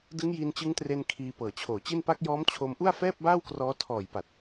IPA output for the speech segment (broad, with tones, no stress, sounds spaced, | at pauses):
d ɯ˦˥ ŋ j i˧ n t͡ɕ ɯ˦˥ ŋ t r e˧ n kʰ iː˧ p ɤː˨˩ t͡ɕʰ oː˨˩ t͡ɕ i˥˩ n p a˦˥ k̚ j ɔː˦˥ m t͡ɕʰ o˧ m ʔ u˥˩ a̯ f ɛː˥˩ p̚ b aː˥˩ w k r ɔː˦˥ tʰ ɔː˨˩ j p a˨˩ t̚